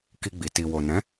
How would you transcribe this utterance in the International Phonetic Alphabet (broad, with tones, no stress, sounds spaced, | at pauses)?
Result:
k i˧ ɡ͡b i˨ t i˨ w o˨ n ɛ̃˨˦